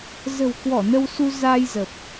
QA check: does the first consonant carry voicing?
yes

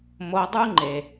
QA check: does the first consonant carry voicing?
yes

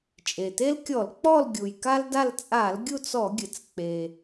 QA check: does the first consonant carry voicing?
no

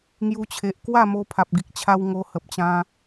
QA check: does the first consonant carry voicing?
yes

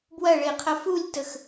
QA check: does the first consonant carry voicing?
yes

